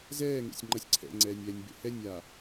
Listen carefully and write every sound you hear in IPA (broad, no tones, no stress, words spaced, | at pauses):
zɛːŋḛsʲŋ͡ǃʌsʲ ǀʰɛ̰ŋ͡ǀɛːnʲɛːnʲbḛ hɛnʲaː